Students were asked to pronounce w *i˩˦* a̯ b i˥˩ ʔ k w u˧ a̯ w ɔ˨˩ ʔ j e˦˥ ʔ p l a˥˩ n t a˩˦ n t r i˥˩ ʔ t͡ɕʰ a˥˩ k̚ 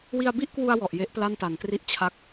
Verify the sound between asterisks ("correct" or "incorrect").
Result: incorrect